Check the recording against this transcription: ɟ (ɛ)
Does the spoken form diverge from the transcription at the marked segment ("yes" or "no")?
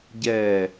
no